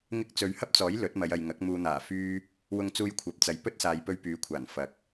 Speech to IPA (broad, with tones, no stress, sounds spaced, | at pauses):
ŋ ɪ˥ k̚ t͡s ɵ˨˧ ɥ h ɐ˥ p̚ t͡s ɔː˨˥ j l ɵ˨˥ t̚ m ɐ˨˧ j ɐ˨ j ŋ ɐ˨˥ k̚ m uː˨ n̪ aː˨˩ f yː˥ | w ʊ˧ ŋ t͡s uː˧ j kʷʰ ɐ˨˥ p̚ t͡s ɐ˨ j p ɵ˥ t̚ s aː˨ j p ɵ˧ ɥ p yː˨˧ kʷʰ aː˨˩ n f ɐ˨ k̚